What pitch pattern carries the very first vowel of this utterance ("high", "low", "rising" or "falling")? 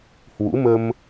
rising